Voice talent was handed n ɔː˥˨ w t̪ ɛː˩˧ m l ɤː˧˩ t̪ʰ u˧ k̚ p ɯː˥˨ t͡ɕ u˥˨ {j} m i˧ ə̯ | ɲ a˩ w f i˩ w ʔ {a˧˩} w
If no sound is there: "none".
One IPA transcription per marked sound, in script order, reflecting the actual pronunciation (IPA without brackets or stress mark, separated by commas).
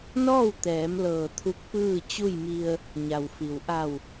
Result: j, a˧˩